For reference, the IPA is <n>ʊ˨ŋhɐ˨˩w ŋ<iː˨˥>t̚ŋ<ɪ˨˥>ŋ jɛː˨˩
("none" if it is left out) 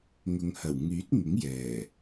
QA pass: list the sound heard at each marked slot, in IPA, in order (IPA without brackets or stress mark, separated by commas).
ŋ, yː˨˥, ɪ˨˥